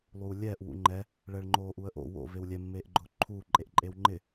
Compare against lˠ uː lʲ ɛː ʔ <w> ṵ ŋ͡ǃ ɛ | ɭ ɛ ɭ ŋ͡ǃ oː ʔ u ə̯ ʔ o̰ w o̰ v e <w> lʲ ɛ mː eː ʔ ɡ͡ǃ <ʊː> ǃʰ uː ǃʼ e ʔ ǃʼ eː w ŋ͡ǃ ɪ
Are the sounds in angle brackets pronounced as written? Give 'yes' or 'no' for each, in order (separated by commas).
yes, yes, yes